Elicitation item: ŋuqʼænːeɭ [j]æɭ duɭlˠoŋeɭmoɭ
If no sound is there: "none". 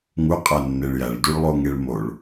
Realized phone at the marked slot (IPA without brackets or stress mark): j